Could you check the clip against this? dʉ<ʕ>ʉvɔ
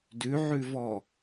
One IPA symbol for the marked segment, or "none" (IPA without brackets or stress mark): ʕ